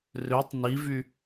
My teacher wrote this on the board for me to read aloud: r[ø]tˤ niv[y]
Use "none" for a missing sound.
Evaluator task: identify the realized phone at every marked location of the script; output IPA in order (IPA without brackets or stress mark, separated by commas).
ø, y